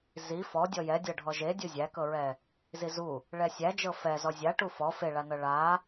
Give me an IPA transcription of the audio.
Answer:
z i f ɔ dʲ ɔ j ɛ dʲ ɤ ɖʱ ɔ ʒ e dʲ u zʲ æ k ɤ ɹ ɛ | z i z u | ɭ ɛ sʲ æ d͡ʒ ɤ f ɛ z ɔ zʲ a ʈ u f ɔ f e ɭ a n ɤ ɭ a

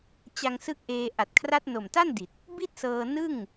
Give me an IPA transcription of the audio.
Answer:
t͡ɕ a˧ ŋ s ɯ˦˥ k̚ ʔ eː˧ ʔ a˨˩ t̚ kʰ r a˦˥ t̚ n o˨˩ m t a˥˩ n d i˨˩ t̚ | b i˥˩ t̚ s ɤː˧ n ɯ˥˩ ŋ

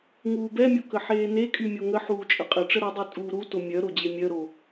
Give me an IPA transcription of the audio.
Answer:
ŋ uː b ɛ mʲ o k ə ħ eː n e kʼ y mʲ o ŋ ə ħ uː t͡ʃʼ ə qʼ ə ʈ͡ʂ ə ɾ u dˤ y tʼ uː ɾ u t o mʲ œ ɾ o d͡ʑ e mʲ œ ɾ o

